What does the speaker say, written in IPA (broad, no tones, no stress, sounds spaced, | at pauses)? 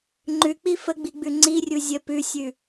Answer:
ŋ͡ǃ ʉ k͡p i f ə ɡ͡b i ɡ͡b ʉ ŋ͡ǀ i rʲ u zʲ ə p ʉ sʲ ʉ